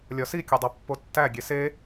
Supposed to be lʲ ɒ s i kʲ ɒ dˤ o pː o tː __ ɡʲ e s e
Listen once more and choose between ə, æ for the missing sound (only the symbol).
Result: æ